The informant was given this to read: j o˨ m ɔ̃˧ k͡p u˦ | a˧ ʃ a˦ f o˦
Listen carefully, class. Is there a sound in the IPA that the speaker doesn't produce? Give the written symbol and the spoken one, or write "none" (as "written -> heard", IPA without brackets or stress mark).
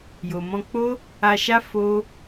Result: u˦ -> o˦